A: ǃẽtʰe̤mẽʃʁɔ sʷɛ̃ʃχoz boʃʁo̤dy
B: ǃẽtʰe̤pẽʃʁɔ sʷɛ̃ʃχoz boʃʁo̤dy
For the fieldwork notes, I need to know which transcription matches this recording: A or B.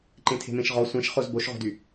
A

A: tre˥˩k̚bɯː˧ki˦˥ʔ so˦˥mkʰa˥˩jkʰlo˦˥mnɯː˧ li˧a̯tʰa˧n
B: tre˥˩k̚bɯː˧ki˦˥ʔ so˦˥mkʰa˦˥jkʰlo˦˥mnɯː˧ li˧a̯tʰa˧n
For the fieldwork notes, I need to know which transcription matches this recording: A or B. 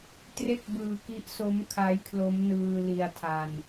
B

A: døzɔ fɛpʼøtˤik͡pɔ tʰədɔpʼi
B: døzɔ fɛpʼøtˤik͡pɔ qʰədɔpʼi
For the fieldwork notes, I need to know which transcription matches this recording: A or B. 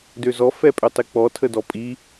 A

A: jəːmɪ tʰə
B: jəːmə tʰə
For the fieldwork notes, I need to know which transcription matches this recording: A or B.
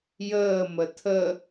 B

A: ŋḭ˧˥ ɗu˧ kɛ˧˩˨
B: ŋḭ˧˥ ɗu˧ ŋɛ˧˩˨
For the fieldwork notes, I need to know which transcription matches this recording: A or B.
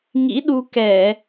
A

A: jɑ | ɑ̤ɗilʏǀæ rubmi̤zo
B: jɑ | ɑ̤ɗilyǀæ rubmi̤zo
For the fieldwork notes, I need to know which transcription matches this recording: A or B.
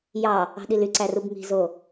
B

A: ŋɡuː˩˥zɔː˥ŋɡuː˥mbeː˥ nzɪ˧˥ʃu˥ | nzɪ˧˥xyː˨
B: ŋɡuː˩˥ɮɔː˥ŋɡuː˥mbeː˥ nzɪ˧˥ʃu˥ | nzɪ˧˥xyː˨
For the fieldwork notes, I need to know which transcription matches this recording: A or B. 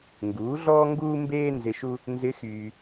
B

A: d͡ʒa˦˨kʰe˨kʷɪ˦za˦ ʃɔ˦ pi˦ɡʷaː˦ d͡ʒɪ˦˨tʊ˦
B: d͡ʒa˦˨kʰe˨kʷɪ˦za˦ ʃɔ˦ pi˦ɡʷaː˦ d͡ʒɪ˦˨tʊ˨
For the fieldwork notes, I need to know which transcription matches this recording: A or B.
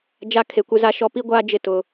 B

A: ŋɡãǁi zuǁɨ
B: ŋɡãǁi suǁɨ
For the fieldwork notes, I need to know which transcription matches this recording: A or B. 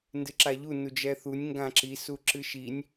B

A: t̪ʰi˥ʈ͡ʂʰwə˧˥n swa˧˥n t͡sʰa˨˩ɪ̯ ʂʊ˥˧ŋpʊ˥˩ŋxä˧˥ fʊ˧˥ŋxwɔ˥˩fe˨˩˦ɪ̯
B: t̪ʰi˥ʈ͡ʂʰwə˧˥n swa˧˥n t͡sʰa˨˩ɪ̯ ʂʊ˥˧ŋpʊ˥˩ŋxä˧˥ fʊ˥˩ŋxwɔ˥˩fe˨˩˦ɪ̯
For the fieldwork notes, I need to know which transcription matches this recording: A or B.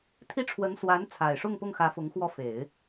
A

